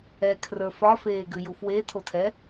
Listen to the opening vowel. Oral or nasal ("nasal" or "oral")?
oral